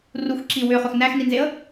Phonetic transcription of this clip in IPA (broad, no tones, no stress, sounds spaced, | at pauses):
r u x ǁ i w ʏ χ ɵ x n æ x n i n z e ə̯